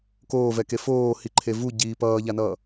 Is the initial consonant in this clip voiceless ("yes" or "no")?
yes